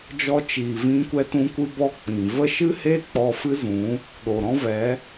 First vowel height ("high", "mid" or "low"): mid